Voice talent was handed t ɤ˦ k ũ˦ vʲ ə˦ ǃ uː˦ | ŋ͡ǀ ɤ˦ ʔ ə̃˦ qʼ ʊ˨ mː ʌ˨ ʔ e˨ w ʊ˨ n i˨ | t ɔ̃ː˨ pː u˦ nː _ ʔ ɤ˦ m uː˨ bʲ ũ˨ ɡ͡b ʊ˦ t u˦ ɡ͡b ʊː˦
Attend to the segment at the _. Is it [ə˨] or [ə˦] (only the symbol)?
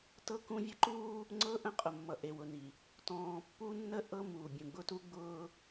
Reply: ə˦